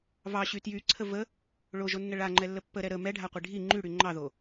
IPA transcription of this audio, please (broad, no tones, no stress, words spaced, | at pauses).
vɑɕy tjyǀʰə və | ɭoʒonːə ɭaŋ͡ǃɛlːə pːəɾɛ ɾə mɛɖʱaqʷi ɖʱi ŋ͡ǃyɽy ŋ͡ǃɑðo